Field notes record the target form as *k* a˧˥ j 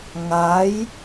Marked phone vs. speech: incorrect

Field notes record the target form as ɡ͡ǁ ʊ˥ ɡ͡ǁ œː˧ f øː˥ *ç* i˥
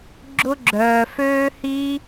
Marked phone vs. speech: incorrect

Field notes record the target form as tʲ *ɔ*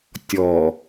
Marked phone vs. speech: correct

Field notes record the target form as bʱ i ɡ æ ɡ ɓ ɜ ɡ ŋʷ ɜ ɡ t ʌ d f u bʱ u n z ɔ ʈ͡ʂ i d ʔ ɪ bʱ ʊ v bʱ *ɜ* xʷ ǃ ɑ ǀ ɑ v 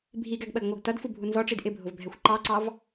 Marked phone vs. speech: incorrect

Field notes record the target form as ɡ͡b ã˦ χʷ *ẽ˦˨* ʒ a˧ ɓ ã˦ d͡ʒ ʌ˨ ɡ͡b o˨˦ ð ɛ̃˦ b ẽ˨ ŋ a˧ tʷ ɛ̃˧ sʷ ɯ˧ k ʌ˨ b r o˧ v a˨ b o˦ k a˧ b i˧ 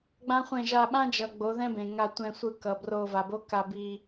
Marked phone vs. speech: correct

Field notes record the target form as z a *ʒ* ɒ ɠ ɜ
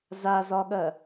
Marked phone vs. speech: incorrect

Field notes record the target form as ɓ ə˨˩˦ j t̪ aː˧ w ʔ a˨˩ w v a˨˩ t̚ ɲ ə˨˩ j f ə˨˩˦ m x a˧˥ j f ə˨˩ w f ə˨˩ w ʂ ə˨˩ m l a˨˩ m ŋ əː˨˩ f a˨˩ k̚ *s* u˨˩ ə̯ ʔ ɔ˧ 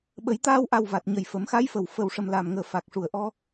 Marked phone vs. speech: incorrect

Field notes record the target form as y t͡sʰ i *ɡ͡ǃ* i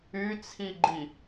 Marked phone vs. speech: correct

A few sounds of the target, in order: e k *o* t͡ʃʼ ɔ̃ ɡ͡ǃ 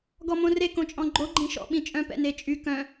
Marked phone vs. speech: incorrect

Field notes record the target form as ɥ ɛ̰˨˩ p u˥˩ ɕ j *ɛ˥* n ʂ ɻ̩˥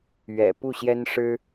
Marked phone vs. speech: correct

